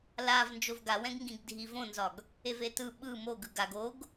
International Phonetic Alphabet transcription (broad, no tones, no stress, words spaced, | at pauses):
lav nd͡ʒovɡawɛ̃ɡŋɡĩɡ dʱivõnzɒɡ | evetɯ ɓɯ moɡ ɯɡaɡ oɡ